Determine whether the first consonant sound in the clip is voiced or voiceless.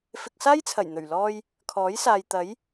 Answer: voiceless